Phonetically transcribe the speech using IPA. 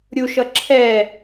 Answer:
ɾʲ u ʃ ʌ ǁʰ ɛ

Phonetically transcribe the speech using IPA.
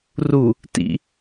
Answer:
r u | t ḭ

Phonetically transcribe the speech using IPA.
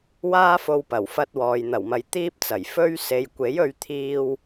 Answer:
w aː˥ f o˧ w p ɐ˨˩ w f ɐ˧ t̚ w ɔː˨ j n̪ ɐ˨˩ w m ɐ˨ j t̪ iː˥ p̚ t͡s ɐ˨˩ j f ɵ˥ ɥ s e˨ j kʷ e˨˥ j ɵ˧ ɥ t̪ʰ iː˧ w

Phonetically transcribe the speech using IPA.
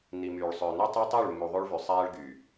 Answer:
n i˨ m yː˨ ɭ sˤ ø˨ n u˦ tˤ o˦ tˤ ø˦˨ ɭ mː u˨ ðˤ o˦ ɭ v y˨ sˤ æː˦ ɭ ɡ y˨

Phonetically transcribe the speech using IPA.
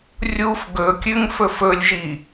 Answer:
rʲ u f ɡ ɵ kʲ ʉ ŋ f ɵ f ɵ lʲ ʒ i

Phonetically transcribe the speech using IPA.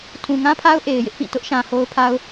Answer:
tʰ ũ˨ ŋ ã˦ pʰ a˦ ʊ̯ ʔ e˨ ɪ̯ j ɪ˦ ʔ p ĩ˦˨ t ʊ˦ ʔ ʃ ã˨ h o˦ ʊ̯ pʰ a˦ ʊ̯

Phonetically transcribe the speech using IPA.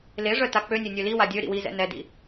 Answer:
l e ʐ œ t a k͡p ø nʲ e nʲ ø l i w a dʲ ø ɾ ḭ w i z ɛ̰ n ɛ d ḭ

